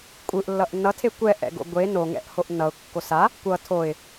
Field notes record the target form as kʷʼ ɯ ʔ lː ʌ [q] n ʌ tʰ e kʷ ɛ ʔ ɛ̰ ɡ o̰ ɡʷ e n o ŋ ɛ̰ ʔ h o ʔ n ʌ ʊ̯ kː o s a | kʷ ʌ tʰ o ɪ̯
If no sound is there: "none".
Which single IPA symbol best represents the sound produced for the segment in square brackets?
ʔ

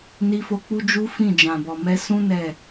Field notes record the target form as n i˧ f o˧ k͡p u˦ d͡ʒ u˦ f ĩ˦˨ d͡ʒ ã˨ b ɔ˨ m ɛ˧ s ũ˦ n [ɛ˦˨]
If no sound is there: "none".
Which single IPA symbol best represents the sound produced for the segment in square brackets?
ɛ˦˨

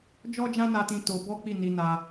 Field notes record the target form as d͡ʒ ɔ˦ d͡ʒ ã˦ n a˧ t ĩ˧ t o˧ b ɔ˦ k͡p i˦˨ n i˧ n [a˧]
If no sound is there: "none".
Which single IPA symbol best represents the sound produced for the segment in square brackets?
a˧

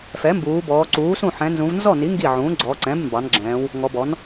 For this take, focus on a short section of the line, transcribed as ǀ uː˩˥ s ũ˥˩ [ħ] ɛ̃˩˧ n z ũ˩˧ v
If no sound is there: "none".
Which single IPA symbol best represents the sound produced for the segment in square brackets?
ħ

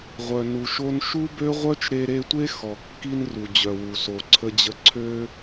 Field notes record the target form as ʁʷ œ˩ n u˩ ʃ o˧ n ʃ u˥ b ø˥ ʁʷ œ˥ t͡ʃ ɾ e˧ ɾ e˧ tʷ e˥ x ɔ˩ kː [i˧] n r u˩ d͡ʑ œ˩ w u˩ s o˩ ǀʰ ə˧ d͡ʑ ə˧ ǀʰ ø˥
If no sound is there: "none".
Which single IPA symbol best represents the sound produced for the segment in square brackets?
i˥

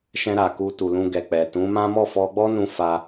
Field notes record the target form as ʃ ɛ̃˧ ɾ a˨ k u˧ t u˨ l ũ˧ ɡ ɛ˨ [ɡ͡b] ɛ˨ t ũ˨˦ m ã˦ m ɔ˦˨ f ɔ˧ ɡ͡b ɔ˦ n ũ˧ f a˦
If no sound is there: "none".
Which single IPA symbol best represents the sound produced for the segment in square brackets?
k͡p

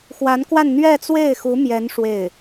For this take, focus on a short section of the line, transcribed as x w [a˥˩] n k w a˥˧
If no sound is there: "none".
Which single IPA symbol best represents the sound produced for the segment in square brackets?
a˧˥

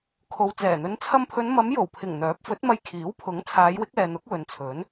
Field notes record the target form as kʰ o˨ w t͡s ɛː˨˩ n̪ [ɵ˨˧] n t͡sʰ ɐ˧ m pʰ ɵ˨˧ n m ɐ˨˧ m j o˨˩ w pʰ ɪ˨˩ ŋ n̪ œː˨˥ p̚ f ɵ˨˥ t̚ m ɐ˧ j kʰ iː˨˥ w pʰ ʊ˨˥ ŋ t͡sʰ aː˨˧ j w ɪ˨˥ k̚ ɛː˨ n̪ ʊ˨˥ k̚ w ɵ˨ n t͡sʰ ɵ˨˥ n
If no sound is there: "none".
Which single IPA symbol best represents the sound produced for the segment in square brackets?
ɵ˨˧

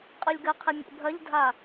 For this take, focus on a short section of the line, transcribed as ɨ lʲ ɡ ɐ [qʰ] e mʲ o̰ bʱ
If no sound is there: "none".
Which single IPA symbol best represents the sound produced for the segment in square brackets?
qʰ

